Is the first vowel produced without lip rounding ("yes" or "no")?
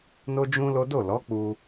no